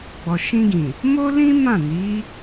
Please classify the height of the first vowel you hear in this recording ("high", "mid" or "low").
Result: mid